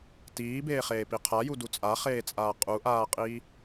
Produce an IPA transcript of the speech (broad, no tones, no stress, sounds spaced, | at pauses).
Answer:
t iː b eː χ eː p i qʰ a j u d u t͡sʼ a χ eː t͡sʼ aː qʼ u ʔ aː qʼ iː